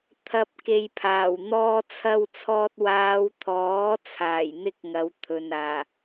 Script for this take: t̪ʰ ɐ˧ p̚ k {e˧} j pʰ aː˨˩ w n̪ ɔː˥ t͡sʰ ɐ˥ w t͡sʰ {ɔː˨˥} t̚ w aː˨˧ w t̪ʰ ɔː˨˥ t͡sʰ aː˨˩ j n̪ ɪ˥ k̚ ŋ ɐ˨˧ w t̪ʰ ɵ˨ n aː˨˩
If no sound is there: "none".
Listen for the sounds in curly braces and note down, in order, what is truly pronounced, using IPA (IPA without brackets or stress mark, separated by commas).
e˧, ɔː˧